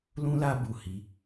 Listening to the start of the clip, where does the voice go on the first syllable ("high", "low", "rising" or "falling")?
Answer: high